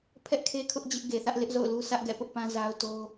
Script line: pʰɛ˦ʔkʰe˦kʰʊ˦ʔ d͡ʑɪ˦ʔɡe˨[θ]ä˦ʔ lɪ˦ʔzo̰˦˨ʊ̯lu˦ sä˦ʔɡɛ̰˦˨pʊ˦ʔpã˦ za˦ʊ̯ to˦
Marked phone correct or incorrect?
correct